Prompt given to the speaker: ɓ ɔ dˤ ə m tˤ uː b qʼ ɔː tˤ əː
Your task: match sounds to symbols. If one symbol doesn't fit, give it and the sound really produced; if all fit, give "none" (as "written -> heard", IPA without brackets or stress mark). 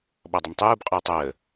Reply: none